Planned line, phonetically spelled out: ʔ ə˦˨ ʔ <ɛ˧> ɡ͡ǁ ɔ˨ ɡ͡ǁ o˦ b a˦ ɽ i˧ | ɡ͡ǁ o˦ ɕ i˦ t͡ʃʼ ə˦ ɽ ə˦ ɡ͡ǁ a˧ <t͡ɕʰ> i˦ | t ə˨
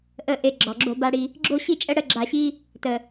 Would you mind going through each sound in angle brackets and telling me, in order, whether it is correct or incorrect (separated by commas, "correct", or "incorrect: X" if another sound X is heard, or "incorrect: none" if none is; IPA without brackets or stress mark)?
incorrect: e˧, incorrect: ɕ